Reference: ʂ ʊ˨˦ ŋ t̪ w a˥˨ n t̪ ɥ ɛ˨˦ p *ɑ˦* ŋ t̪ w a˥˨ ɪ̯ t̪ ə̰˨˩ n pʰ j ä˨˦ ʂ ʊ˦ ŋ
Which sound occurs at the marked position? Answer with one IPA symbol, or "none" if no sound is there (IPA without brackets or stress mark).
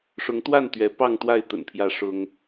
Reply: ɑ˥˨